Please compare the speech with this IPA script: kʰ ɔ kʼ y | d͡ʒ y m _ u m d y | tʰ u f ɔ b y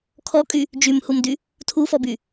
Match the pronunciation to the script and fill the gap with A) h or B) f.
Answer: A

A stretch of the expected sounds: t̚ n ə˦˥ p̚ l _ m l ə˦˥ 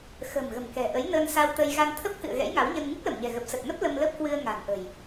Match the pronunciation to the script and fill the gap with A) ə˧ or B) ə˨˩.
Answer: A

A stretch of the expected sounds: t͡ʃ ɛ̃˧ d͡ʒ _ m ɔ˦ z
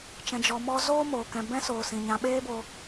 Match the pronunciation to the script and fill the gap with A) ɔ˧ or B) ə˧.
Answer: A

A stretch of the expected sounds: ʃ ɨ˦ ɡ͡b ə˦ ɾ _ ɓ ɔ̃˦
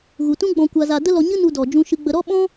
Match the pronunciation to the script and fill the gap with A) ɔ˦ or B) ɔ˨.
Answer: A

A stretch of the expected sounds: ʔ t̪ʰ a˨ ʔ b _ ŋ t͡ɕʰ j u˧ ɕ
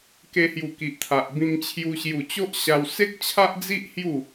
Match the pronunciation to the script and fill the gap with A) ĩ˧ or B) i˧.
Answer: A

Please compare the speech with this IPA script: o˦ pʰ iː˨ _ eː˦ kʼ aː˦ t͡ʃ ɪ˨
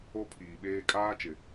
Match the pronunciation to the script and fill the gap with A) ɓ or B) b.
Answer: A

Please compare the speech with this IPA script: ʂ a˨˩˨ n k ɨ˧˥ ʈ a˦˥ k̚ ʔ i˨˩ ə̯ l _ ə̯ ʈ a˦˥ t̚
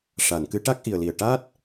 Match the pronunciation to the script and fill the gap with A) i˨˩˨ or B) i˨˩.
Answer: B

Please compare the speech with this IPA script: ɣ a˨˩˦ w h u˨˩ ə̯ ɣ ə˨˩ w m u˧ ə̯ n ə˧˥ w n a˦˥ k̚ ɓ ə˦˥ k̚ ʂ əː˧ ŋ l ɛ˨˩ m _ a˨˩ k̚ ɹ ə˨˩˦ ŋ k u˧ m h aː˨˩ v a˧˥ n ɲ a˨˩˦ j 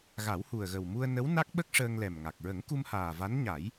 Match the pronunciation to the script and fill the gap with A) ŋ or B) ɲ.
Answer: A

